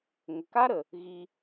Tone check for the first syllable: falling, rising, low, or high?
low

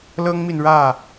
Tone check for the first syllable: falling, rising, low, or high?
high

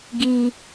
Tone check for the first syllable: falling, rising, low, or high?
high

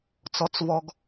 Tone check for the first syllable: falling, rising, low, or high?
low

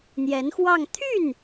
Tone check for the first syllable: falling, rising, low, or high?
rising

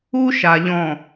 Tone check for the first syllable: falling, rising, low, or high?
high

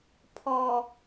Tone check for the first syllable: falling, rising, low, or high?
low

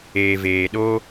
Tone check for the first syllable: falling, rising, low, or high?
low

